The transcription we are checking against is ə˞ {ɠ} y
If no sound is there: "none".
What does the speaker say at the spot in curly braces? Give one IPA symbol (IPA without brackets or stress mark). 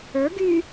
ɡ